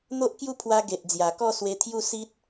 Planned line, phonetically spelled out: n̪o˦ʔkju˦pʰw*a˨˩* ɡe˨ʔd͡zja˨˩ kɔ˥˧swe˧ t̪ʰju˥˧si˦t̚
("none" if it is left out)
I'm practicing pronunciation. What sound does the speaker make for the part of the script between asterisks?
a˧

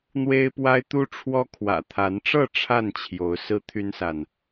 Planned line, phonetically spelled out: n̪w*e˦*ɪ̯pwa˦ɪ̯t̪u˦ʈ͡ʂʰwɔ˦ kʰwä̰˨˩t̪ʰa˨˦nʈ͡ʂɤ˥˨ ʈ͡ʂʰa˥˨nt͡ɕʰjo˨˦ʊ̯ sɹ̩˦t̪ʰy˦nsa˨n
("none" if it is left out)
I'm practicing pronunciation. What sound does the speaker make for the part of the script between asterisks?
e˦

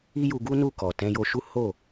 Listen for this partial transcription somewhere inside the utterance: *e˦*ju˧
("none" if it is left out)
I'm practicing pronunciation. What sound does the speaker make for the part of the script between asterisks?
i˦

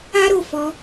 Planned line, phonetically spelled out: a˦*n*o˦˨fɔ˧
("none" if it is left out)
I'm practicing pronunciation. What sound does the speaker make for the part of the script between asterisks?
ɾ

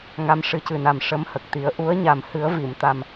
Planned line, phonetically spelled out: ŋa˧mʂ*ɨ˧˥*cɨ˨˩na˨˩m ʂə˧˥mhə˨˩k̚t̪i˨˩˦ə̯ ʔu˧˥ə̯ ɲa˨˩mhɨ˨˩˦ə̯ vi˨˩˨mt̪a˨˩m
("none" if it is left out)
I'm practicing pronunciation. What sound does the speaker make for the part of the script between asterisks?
ɨ˧˥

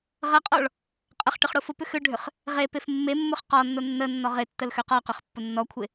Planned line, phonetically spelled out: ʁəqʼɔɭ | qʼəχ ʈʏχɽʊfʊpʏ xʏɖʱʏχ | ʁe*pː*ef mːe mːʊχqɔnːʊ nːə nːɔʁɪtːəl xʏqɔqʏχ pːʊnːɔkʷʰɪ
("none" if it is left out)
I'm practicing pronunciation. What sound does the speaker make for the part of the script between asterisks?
p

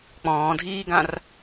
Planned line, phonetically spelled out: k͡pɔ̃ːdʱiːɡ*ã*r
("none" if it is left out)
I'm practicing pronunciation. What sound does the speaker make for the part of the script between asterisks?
ã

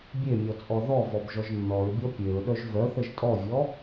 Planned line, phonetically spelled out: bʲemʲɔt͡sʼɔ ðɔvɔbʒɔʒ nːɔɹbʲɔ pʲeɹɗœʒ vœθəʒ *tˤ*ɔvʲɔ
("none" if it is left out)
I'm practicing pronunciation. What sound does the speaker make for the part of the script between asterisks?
tʼ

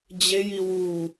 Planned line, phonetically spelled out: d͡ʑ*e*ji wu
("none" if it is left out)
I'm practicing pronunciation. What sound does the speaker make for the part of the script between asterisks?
e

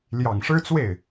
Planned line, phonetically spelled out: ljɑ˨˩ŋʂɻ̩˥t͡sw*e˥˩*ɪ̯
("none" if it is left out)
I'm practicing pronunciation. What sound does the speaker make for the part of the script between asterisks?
e˥˩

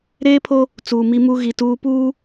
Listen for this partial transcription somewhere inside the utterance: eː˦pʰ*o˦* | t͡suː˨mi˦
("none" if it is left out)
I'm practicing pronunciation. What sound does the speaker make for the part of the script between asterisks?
o˦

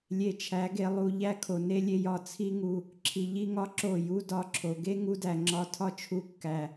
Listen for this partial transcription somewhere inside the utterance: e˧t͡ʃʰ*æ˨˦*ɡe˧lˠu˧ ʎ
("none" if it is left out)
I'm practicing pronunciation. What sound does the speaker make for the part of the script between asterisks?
æ˨˦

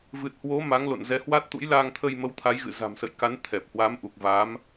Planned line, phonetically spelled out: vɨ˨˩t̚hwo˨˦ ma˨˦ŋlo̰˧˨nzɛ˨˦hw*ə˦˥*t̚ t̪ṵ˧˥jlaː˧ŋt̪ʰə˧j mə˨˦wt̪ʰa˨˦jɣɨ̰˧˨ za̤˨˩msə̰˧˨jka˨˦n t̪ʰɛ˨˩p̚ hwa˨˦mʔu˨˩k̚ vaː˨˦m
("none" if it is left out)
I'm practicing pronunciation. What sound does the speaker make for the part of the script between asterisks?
a˦˥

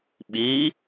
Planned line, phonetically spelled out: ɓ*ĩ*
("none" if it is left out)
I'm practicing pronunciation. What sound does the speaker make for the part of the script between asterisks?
i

